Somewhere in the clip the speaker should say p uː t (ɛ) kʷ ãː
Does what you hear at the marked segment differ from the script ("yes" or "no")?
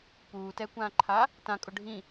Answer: no